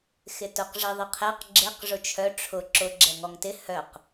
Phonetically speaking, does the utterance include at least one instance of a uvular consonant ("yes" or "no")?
yes